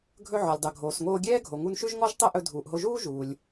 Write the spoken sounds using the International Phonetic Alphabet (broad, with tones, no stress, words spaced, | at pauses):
ɡʱɵ˧ʕɔ˩lʲdˤɵ˩ ɡʱoː˩sŋoː˧ɡʲɛː˥ ɡʱo˩ŋu˧nʃʉ˥ʒŋɔ˥ʒ tˤɛ˥ʔɵ˧dʱuː˩ʔɦo˧ ʒuː˥ʒuː˩lʲ